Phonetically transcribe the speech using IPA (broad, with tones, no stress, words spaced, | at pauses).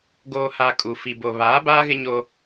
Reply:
ɡoː˨ha˨ kʼu˨ fi˨bo˨ βaː˨˦baː˦ɣɪ˦ɲo˦